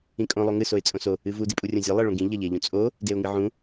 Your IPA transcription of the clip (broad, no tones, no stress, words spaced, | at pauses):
ĩkʼõ lˠoŋɨ soɪ̯t͡sʼõso | ɨvu dipʼurʲõzʲo lˠeɭõɡĩ ʎɐʎeʎũt͡sʼo | deʊ̯ŋɨʕũ